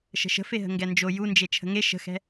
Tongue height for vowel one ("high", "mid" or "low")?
mid